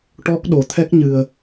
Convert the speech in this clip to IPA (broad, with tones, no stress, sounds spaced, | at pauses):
ʈ ɔ˦˥ k̚ ɗ o˨˩ t̪ʰ ɛ˦˥ k̚ ɲ ɨ˨˩ ə̯